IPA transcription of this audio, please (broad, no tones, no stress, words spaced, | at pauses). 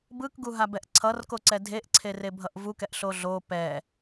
bɯkɡuɦabɛʔ ǀʰʌrkoǀɛ dʱeʔǀʰerebʱʌʔ vukɛʔɬo ɮo pɛ